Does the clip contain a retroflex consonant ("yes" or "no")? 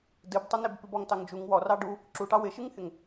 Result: yes